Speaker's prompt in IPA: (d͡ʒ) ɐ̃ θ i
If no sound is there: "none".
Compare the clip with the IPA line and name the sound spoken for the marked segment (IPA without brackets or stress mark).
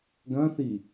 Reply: ɡ